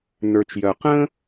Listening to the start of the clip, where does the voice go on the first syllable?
low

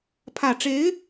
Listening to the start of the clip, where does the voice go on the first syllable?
low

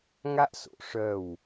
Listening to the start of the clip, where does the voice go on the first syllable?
high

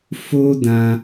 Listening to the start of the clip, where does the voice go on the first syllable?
high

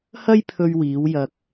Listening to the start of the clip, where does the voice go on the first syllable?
high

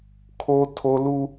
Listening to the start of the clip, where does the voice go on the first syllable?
high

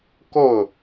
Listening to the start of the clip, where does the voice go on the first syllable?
falling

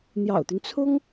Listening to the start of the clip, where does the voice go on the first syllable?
low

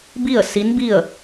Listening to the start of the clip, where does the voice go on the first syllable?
falling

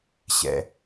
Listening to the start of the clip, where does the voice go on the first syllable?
low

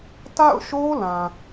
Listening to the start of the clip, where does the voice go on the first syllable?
falling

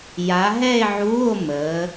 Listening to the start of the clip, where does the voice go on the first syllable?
rising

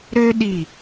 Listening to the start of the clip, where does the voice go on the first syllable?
high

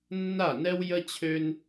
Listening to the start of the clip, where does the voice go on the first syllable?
falling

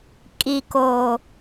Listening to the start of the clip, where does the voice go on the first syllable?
low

